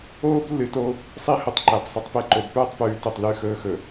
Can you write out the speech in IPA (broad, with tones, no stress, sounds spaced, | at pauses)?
oː˦ b lː ɨ˨ t o˦ | sˤ i˦ h ɵ˨ tˤ ǃ a˨ b sˤ ɨ˨ tˤ p e˨ ǃ o˨ b p ɵː˦˨ tˤ p ʉː˨ t ɵ˨ tˤ l ʉ˦˨ x ɵː˦ x ɵ˨